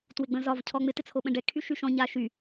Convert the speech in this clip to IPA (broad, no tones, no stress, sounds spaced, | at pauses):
t w ɪ ɡ͡b ə̃ z ɒ v cʰ ɔ ŋ͡m ɪ t ɪ t͡sʰ o ɓ ə̃ ɖ ɛ kʰ y ʃ y ʃ ɔ̃ ɲ a ʃ y